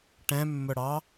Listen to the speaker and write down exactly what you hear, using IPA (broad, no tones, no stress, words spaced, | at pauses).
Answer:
ʈɛ̃mːʊɽɑ